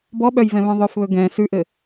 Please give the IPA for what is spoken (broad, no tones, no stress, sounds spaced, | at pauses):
b ɔ ɓ œ j v ɛ̃ β œ̃ ðˤ œ f β ɵ ɡ ɛ̃ s ʉ ʔ ɘ